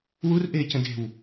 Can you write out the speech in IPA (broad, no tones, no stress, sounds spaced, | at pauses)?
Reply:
w u r ʔ eː c ə̃ d e̤ w